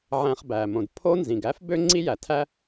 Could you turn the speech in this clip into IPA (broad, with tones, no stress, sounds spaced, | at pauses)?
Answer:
ʕ æ̃˨ χ b æ˩ m õ˩ d pʰ o˦ n z ĩ˩ ɡ æ˥ f b ø˦ ŋ͡ǀ i˦ j æ˩ tʰ æ˦